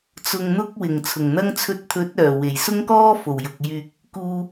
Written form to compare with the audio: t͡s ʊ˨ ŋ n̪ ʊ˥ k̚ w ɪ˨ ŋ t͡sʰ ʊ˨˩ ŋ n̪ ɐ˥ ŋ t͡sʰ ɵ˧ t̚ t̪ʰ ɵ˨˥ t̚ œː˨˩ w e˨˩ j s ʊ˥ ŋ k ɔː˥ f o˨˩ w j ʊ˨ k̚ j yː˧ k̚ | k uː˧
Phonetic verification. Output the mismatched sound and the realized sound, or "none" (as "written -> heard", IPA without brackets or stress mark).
ɪ˨ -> ɪ˨˩